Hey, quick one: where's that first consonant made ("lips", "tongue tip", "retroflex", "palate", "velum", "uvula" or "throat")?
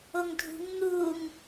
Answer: velum